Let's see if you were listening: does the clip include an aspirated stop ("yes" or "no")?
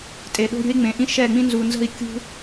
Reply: no